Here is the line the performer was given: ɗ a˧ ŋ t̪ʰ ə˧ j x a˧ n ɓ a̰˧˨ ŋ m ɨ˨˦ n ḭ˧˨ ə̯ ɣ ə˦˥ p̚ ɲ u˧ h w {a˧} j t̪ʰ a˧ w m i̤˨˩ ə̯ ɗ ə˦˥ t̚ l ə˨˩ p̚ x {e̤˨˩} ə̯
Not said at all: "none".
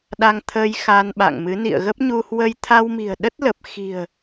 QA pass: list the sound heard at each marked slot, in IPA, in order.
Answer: ə˧, i̤˨˩

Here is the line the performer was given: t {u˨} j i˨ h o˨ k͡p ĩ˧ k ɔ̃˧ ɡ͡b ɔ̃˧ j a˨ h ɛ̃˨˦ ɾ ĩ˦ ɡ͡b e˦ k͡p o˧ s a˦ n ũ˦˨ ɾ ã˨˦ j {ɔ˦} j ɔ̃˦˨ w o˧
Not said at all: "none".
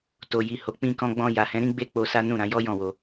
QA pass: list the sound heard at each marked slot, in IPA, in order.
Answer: o˨, ɔ˦

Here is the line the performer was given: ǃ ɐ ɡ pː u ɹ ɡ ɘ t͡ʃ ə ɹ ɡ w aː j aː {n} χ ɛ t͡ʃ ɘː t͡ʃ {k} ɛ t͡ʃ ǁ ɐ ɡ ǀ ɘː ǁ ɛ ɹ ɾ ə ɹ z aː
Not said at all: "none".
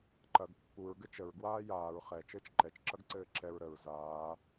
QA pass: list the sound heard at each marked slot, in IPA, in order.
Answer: ɹ, ǃ

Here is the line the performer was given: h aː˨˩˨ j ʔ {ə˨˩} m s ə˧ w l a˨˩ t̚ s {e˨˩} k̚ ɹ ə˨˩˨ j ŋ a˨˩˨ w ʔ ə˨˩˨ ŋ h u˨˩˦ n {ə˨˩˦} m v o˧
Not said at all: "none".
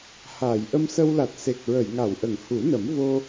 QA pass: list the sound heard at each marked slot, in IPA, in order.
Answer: ə˧, e˨˩, ə˨˩˦

